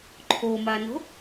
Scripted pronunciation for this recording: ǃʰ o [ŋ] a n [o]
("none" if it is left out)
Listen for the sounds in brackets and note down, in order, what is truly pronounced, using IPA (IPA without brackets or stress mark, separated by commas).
m, o̤